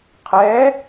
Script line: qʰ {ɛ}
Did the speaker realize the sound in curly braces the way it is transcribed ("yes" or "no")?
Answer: yes